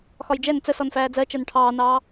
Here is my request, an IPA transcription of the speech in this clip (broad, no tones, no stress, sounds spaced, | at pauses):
x ɒ j d͡ʒ ɛ n t͡s ə s ɔ n f æː d͡z ɜ t͡ʃ ɜ n ʈʰ ɑː n ɑː